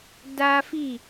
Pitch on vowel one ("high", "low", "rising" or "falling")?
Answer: high